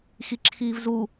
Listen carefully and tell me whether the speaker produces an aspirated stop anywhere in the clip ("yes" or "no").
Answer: yes